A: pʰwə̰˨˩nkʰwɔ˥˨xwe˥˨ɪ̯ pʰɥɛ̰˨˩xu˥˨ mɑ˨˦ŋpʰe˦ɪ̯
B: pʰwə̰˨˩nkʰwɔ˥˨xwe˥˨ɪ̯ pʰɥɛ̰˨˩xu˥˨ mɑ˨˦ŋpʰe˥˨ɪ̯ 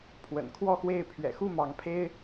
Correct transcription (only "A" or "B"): A